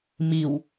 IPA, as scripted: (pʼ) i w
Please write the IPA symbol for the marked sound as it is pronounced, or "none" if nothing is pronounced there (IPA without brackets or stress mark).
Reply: m